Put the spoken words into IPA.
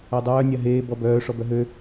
ɜ dˤ œː nʲ a ɦ eː b ɔ b œː ʂ ɔ b œ ɦ ø

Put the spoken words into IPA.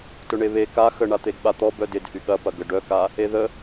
t ʊ ɳ e β e k a x ə ɳ a t̪ e ɡ ɓ a t̪ ɔ b œ d ɪ d h y ɠ ɐ p ɐ ɡ ə ɖ œ k a | e ð ə

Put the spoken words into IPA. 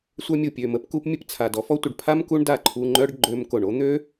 sʷ œ˧ mʲ u˨ pʲ ø˨ m ə˧ p k u˧ p mʲ ə˦ p t͡sʰ a˨ d ɔ˨˦ f ɔ˦ tʷ ə˧ ɖ pʰ a˦ m k u˦ ɳ d a˦˨ ǃʰ u˧ ŋ͡ǃ œ˦ ɖ ɡ͡ǃ ø˧ m k o˨ ɳ o˦ n̪ ø˦

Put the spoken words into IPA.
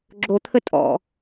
ɡ͡ǁ o t̪ʰ ə tʼ ɔ̰

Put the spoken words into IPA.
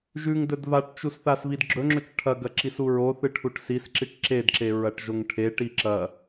ʒ ʉ ŋ d ɵ d v a ʈ t͡ʃ u s θ a s v i d ɡ͡ǁ ɵ ŋ͡ǁ ɵ t͡ʃ ʈʰ ɐ ɡ ɐ ǁ i s u ɹ o θ ɨ ʈʰ u ʈ s i s ǁ i ʈ ǁ e d ǁ e ɹ ɐ ʈ ʒ o ŋ ʈʰ e ʈ i ǁ ɐ

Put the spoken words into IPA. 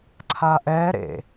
ǀʰ a ʔ ɛ ɾ ḛ

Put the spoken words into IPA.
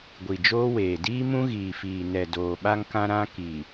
ɡʷ i˨ d͡ʒ oː˦ w eː˨ d iː˦ m ũ˦ ɣ iː˨ f iː˨ n ɛ˨ d oː˨ ɓ a˦ ŋ k ã˦ ɾ ã˦ k i˨

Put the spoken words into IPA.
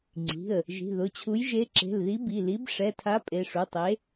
ŋ͡ǀ i̤˩˧˩ ə̯ | ʒ i̤˩˧˩ ð ʊ˩˧˩ t͡ɕʰ u˨˥ j ʒ e˨˥ ǁ e̤˩˧˩ l ð i˨˥ b i˩˧˩ l i˨˥ b ʂ ɛ˩˧˩ tʰ a˨˥ pʼ e˩˧˩ ʂ u˩˧˩ tˤ e˨˥

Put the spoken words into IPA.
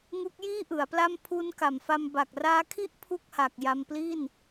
ŋ u˦˥ k̚ j iː˥˩ ʔ ɯ˩˦ a̯ p l a˥˩ m pʰ u˦˥ n k a˨˩ m f a˧ m b a˨˩ k̚ r aː˦˥ kʰ i˥˩ ʔ pʰ u˥˩ k̚ h a˨˩ k̚ j a˧ m p l i˥˩ n

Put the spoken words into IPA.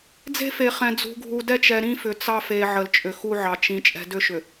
d͡z e̤˦ f e˨ χ ɛ̃˨ d͡z ṳ˨ ɡʱ u˨ d ɛ˦˨ t͡ʃ ɛ˨ ɾ ĩ˦ f ʏ˨ t͡s ɑ˦ f e˨ ʕ ə˨ l t͡ʃʼ ʏ˨ x u˦ ʕ ɑ˨ t͡ʃ ĩ˨ t͡ʃʼ ɛ̤˨ d ʏ˦˨ ʃ ʏ˨

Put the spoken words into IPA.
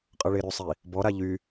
qʼ ʌ ɭ e ɾ y sˤ i | b ɔ ɾ a ʎ y

